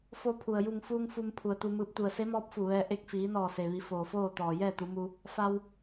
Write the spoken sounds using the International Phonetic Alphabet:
fo˧pʰu˩ə̯ ju˧˩ŋfuː˧ŋ fu˧m pʰu˩ə̯t̪u˧mɯː˧p̚ t̪u˧˩ə̯se˧˥mɔː˧˥p̚fu˧˩ ʋɛː˧ ʔe˧k̚fiː˩˧nɔː˧˩se˩ ʋi˩˧ foː˩foː˥˨t̪ɔː˩ jɛː˥˨t̪u˩˧mu˧ | fa˧w

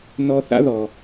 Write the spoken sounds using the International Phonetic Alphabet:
nɔ˦ θa̰˥ðɔ˨

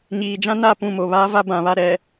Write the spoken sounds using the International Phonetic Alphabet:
ɲiː˨d͡ʒã˦ na˦˨ pũ˦˨mo˨βaː˦ va˦bã˨βa˦˨ ɾɛ˨

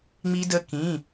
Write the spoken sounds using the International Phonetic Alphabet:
ŋ͡mi˥də˥kĩ˧˥˧

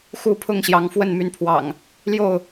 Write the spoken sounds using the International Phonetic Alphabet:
xu˥˨ pʰʊ˥˨ŋɕjɑ˨˦ŋfwə˥˨n my˨˦npʰwɑ̰˨˩ŋ | ljo˥˨ʊ̯

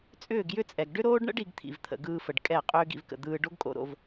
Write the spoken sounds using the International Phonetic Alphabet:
t͡sʼʏː˦˨ɡjʏ˦t͡sʼɛ˨ɡ ɖʏ˦ɾoː˦ɖɳə̰˦ɖ i˨˦ɡt̪ʰḭ˨vt̪ʰə̰˨ ɡɯː˧fə˨ɖ kʼɛ˦˨ qʼʏː˦ɡḭ˧vkə̰˨ d̪ɯː˧ ɖo˦ɡkʼo̰˧ ɾo̰˧v

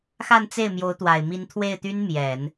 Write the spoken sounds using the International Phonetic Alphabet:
xa˥˧nt͡se˥˩ɪ̯ mjo˧˥ʊ̯t̪wa˨˩ɪ̯ mi˧˥nt̪ʰwe˥˩ɪ̯t̪y˥n mjɛ˨˩˦n

